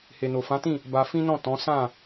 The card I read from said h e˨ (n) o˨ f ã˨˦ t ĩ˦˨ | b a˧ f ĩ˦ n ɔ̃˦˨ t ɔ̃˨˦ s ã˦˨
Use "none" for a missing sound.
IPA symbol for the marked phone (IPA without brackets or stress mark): n